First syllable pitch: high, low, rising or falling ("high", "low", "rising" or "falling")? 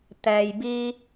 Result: low